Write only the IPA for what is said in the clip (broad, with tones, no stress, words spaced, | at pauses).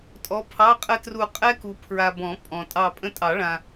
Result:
tʼɔ˨˦pʰɑ˧˥˧ qʼə˥tru˦˨ qʼɛ˥ku˨ pʰɹa˨bɔ̃˨˩˦ pʼɔ̃˨ tʼɑ˦˨pʼə̃˥ tʼɑ˨˩˦ɭã˨